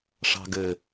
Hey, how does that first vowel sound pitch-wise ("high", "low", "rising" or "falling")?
low